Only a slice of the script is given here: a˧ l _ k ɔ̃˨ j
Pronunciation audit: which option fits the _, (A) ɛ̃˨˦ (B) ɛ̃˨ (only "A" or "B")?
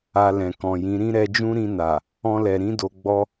B